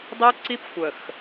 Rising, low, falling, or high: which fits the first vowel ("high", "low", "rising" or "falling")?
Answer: high